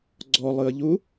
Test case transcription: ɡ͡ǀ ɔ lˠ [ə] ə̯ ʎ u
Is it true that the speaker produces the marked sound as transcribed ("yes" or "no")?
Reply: no